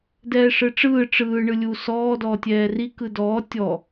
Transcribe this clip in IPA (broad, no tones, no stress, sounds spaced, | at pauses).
d ɛː ʂ ɯ ʈ͡ʂ ɯː ʈ͡ʂ ɯː ɳ ɯ lʲ u s ɔː d ɔː tʲ ɛː r i k ɯ d ɔː tʲ ɔ